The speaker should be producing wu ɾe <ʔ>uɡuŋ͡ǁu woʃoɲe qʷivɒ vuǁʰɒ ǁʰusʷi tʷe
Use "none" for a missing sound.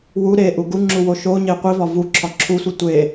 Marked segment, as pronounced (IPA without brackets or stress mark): ʔ